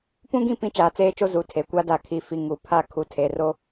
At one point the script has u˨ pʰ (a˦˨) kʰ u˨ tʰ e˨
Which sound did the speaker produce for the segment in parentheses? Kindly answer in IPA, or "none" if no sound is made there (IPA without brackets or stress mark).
a˦˨